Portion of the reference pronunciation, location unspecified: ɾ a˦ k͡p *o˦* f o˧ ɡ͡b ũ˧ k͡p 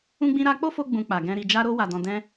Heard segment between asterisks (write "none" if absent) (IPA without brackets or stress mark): o˦